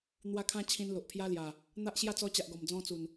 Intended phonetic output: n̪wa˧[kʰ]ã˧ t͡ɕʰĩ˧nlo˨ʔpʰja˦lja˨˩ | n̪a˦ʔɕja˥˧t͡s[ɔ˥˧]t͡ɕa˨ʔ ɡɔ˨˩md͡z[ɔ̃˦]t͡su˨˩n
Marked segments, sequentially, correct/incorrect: correct, incorrect: ɔ˧, correct

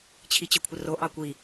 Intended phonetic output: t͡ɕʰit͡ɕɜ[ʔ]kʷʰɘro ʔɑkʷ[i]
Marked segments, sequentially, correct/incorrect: incorrect: none, correct

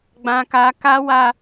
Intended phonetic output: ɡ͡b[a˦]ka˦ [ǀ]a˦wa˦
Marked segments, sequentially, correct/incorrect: incorrect: ã˦, incorrect: k

